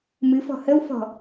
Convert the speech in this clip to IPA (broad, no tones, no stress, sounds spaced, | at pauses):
m ɨ f ɔ̤ h ə w f ɔ̤